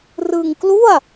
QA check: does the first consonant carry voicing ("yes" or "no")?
yes